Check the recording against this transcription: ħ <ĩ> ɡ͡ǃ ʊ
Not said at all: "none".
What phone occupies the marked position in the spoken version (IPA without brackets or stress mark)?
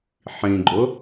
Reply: ĩ